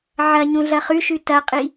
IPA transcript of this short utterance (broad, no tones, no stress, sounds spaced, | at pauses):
ʕ ɐ ɲ ũ ɮ ɐ χ ʉ ʃ ʉ t ɐ qʼ i